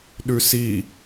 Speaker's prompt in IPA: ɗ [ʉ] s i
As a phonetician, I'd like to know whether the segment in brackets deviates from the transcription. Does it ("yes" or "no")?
no